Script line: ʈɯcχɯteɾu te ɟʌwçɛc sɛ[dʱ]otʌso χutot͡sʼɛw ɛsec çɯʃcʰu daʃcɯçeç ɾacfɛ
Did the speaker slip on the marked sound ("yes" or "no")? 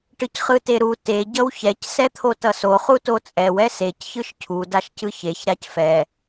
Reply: yes